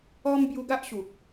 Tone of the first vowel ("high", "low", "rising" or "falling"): high